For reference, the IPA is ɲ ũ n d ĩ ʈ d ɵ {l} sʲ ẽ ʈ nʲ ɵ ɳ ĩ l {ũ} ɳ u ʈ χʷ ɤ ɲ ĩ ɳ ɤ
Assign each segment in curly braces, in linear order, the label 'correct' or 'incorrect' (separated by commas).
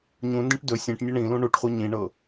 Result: incorrect, correct